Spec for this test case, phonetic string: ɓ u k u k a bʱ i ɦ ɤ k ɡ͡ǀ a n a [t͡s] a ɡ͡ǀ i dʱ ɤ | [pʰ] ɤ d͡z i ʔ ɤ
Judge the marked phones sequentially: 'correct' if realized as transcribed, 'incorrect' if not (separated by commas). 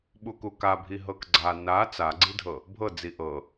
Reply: correct, incorrect